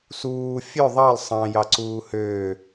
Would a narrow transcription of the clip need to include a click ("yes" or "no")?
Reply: yes